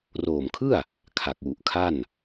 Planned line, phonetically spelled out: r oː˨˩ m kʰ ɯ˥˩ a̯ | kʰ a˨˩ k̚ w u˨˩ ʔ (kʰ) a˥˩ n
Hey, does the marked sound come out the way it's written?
yes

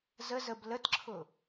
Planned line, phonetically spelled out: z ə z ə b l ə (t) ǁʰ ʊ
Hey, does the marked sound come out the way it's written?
yes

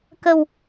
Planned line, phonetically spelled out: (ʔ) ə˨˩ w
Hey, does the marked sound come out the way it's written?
no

